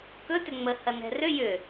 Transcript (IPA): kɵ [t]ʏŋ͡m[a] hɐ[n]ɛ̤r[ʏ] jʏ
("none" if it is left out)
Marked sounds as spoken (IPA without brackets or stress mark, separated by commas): t, ə, n, ʏ